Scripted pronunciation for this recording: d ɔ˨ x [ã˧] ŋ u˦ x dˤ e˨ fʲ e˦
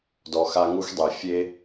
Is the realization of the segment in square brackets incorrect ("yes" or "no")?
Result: yes